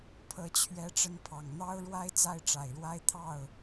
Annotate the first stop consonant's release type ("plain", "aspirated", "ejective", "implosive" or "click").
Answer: aspirated